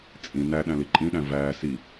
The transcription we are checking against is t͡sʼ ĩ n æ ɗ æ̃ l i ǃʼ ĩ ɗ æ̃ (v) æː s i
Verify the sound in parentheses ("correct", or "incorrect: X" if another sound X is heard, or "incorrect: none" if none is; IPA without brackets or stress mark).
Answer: correct